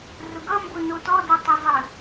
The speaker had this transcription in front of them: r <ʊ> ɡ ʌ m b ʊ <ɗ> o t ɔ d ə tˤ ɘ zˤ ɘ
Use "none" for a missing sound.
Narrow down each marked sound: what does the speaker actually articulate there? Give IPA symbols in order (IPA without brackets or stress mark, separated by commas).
ʊ, n